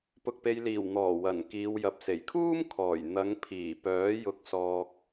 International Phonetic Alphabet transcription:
p ʊ˨ k̚ p e˨ j l iː˨˩ w n̪ ɔː˨˩ w ɐ˨˩ n k iː˨ w j ɐ˨ p̚ s e˨˩ j kʰ uː˥ m kʰ ɔː˨˩ j n̪ ɐ˨˧ ŋ pʰ iː˨˩ p œː˨˥ j ʊ˧ k̚ s ɔː˧ k̚

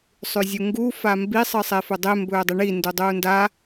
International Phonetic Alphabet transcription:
sˤ ʉ zʲ u ŋ ɡ u f a m b i sˤ ɨ sˤ e f ɵ dˤ e m b ɵː dˤ i ɳ i n d u dˤ uː n d a

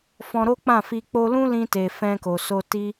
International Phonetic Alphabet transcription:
f ɔ̃˧ ɾ o˦ k͡p ã˦˨ f i˧ k͡p o˧ l ũ˦ l ĩ˧ t e˨ f ɛ̃˧ k o˨ s o˧ t i˦

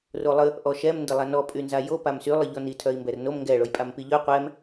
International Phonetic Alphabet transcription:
r o lˠ ə | ʔ ɔ ʃ ɛ m n d ə lˠ a n ɔ pʼ y n z a j o p a m s y lˠ ə ʎ ɔ n i tʰ œ i̯ m b ɛ r n o m ŋ ɡ ɛ ɭ o j pʼ a m p i ʎ œ qʷ ɛ m

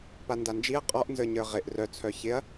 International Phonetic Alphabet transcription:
p a n d a n d͡ʒ i ɐ̯ qʼ ɔ ʔ n z ə˞ ɲ ə˞ ʁ ɪ ʔ r œ t͡sʰ œ ç ɪ ɐ̯

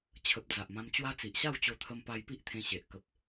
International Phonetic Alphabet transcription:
t͡ɕʰ ə˨ p̚ d͡z a˨ ʔ m ã˧ m t͡ɕ w a˦ t͡s i˨ ʔ ɕ a˥˧ w t͡ɕ o˧ t̪ʰ ə˧ m p a˧ j p i˦ ʔ t̪ʰ ẽ˧ ɕ e˨ ʔ k ə˨ p̚

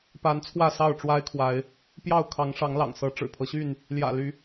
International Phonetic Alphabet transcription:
p a˨˦ n t͡sʰ w ä˥˨ s ɑ˥˨ ʊ̯ ʈ͡ʂ w a˦ ɪ̯ kʰ w a˨˦ ɪ̯ | p j ɑ˥˨ ʊ̯ kʰ ɑ˨˦ ŋ ʂ ɑ˨˦ ŋ l ɑ̰˨˩ ŋ s ɤ˨˦ ʈ͡ʂ ɻ̩˨˩ pʰ ɤ˦ ɕ y˥˨ n | l j ä̰˨˩ l y˨˦

